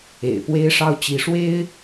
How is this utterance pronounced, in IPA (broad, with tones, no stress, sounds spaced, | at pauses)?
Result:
ḛ˨˩ ɪ̯ p w e˥ ɪ̯ ʂ ɑ˥˩ ʊ̯ t͡ɕ i˧˥ ʂ w e˥ ɪ̯